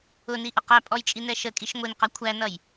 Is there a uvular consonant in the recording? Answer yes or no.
yes